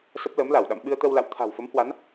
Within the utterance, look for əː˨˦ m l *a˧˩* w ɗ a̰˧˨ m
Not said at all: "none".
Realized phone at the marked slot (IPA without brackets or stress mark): a˧˩